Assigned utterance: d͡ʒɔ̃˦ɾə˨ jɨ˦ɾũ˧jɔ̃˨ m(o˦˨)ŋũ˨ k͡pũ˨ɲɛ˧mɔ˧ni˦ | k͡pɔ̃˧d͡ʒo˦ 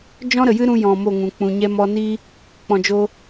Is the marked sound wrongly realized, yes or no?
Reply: no